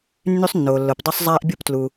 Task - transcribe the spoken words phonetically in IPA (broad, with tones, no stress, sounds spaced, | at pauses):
nː y˥ sˤ nː oː˩ lː o˩ p dˤ o˥ sˤ zˤ aː˥ ʔ bʲ u˥ p t l u˩